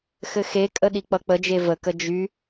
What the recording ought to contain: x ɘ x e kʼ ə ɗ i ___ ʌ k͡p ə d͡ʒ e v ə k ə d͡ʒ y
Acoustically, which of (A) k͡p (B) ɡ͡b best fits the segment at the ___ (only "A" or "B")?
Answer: A